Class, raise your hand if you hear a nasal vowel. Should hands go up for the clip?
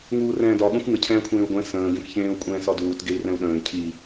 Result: yes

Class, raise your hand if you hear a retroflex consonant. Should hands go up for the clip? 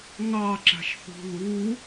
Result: no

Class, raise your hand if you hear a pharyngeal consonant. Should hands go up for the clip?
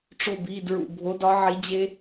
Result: yes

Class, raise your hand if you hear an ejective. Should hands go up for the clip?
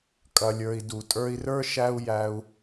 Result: yes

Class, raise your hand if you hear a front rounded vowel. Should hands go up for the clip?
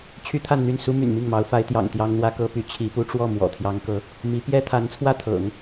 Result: yes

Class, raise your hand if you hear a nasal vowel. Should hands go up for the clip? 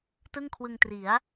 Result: no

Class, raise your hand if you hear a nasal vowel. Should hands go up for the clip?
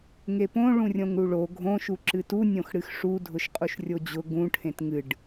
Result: yes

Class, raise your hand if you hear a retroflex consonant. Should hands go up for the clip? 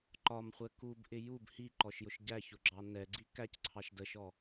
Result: no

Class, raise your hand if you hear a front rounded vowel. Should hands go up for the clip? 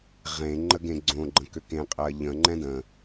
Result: yes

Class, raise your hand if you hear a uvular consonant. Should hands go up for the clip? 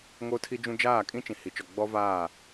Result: no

